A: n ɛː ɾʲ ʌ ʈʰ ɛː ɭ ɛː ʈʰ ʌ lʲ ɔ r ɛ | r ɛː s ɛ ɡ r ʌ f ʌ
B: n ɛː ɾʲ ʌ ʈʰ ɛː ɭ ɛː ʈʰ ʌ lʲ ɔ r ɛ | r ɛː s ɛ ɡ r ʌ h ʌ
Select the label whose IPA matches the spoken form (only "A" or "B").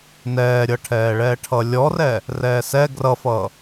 A